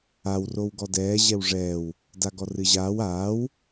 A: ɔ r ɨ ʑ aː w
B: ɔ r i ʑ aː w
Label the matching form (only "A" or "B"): A